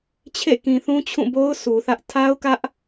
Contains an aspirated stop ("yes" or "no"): yes